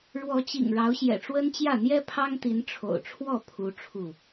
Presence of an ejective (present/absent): absent